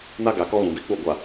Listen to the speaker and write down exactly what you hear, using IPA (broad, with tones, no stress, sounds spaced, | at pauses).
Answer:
n a˦ ɡ a˨ k ɔ˦ ɣ ũ˨ b i˨˦ k͡p u˦˨ ɡʷ a˨